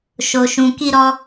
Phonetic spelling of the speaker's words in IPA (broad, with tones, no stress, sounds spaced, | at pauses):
ʃ o˨ ʃ ũ˨ k i˧ ɾ ɔ˧